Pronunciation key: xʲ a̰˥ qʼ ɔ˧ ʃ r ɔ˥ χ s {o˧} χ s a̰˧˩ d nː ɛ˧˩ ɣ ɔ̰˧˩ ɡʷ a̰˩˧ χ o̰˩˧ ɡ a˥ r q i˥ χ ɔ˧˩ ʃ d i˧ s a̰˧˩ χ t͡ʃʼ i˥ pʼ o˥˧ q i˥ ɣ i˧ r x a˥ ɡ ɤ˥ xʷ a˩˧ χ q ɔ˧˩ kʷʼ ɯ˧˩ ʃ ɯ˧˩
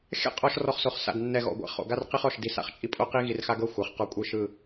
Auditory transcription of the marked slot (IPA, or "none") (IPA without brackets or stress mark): o˧